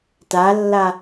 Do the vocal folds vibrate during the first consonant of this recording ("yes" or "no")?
no